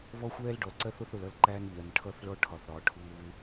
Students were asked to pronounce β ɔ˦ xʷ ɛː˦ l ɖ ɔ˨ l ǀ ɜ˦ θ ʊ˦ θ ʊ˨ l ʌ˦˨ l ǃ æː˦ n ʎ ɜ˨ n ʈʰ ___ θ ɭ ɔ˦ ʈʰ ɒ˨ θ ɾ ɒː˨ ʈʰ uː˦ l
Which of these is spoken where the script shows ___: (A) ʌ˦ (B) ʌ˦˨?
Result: B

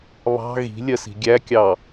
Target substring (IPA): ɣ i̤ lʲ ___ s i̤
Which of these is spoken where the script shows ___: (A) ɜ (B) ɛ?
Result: A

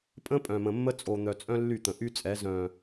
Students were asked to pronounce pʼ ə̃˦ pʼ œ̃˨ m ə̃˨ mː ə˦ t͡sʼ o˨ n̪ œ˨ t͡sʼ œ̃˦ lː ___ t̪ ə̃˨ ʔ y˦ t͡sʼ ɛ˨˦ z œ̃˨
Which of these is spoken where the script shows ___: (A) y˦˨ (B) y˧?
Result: A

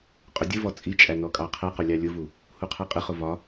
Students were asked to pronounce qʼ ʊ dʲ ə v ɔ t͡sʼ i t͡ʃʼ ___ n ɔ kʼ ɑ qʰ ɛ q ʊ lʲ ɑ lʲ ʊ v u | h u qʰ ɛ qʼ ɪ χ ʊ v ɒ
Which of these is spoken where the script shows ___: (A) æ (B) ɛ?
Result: A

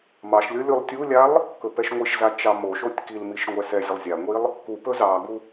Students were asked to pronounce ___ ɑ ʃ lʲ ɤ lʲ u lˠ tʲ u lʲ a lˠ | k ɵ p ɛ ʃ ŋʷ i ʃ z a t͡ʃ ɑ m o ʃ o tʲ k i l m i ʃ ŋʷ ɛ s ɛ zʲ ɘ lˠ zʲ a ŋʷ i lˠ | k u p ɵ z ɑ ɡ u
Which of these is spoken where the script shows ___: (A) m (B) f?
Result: A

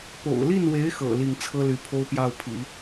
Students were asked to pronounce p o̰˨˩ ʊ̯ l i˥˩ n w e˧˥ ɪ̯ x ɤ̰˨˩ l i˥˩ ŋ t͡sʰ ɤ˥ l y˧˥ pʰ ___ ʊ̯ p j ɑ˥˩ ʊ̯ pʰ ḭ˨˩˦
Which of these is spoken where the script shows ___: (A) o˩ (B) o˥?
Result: B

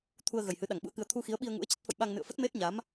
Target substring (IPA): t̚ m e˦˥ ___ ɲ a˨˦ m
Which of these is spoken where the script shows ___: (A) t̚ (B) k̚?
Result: A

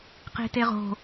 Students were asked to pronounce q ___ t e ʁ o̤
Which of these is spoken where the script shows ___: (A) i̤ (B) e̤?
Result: A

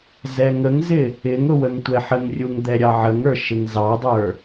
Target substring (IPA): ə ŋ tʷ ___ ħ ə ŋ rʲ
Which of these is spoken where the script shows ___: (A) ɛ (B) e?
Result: A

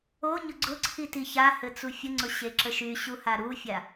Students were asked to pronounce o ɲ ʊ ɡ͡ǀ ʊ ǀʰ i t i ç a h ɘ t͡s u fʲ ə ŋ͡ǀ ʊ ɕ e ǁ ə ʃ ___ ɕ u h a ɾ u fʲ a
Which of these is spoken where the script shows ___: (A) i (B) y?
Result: B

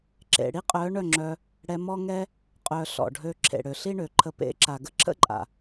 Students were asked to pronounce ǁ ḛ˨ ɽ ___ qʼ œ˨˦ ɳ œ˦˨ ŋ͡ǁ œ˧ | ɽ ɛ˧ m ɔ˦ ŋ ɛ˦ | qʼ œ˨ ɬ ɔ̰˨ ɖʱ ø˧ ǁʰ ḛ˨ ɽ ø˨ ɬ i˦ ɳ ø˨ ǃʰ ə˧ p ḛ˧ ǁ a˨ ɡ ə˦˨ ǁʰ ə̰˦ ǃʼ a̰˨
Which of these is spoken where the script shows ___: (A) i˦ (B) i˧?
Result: A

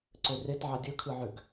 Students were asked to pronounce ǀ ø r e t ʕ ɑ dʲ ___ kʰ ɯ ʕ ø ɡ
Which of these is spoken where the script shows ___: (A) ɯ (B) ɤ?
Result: A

